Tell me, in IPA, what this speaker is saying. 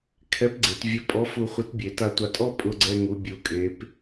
kʰ ɛ˧˥ p ɡ͡ǀ e˩˧ t vʲ ʊ˧˥ pʼ ɔ˧˥ f u˧ χʷ ɪ˧˥ t bʲ e˩˧ t a˧ tʷ a˧ tʼ ɔ˥ pʼ ʊ˧ ɡ͡ǀ ɛ˧ ŋ u˩˧ bʲ u˩˧ kʼ e˩˧ p

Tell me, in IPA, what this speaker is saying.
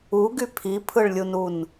u ɡ y pʰ i pʰ ɯ ɭ lʲ u n u n

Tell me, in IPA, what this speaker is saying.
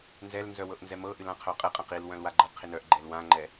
n z ɛ l n z œ w ɤ ʔ n z ɛ m ɤ ʔ ɨ l ã qʰ œ qʼ ɨ qʼ ã q i l w œ̃ l w a ɡ͡ǃ ɤ d qʰ i n œ ʔ ɡ͡ǃ ɛ l w ã ŋ͡ǃ ɛ

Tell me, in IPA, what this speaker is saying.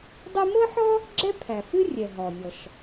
dˤ ɛ˥ m ɤ˥ ħ ɔ˥ | ɡ͡ǁ ɛ˥ pʰ æ˩ f ɨ˥ rʲ ɛ˩ ɦ ɔ˩ nʲ ɔ˩ ʃ

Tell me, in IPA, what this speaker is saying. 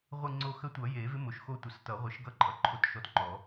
ʁʷ ɨ˦˨ ŋ͡ǀ o˦˨ x ə˧˥ tʷ ʌ˨˩˦ j e˨˩˦ v ɪ˧˥ m o˨˩ ʃ x o˦˨ tʷ ə˨˩˦ s t ʌ˨˩˦ ʁʷ ɨ˨˩˦ ʃ ɡ ʌ˦˨ ǃʼ ʌ˨˩ ǃʰ o˧˥ t ʃ ɔ˧˥ t ŋ͡ǃ ɔ˨˩˦

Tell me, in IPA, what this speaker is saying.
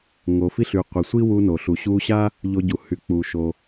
ŋ o˩ f i˧ ɬ y˩ qʷ i˩ sʷ i˥ w u˧ n o˩ ɬ u˩ ɕ u˧ ɕ a˥ | ʎ o˧ ɟ u˩ h y˩ k͡p u˩ ʃ o˩

